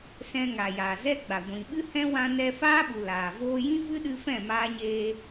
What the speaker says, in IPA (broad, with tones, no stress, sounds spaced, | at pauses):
s ɛ̃˧ ŋ a˨ j aː˨ z ɛ˦ ɡ͡b a˨ ɡʷ ĩ˨ ɓ ɨ˦ h ɛ̃˦ w ã˧ n ɛ˧ f aː˦ ɓ u˨ l aː˨ v oː˧ j ĩ˦ v ɨ˦ ɗ ɨ˧ f ɛ̃˦˨ m aː˧ ɲ eː˧